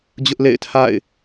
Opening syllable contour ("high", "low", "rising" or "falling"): high